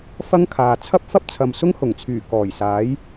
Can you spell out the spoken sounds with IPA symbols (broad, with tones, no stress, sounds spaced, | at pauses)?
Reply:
f ɐ˥ ŋ kʰ aː˨ t͡sʰ ɐ˥ p̚ f ɐ˥ p̚ t͡sʰ ɐ˨ m s ʊ˥ ŋ h ʊ˨˩ ŋ t͡sʰ yː˨˩ k ɔː˨˩ j s aː˨˥ j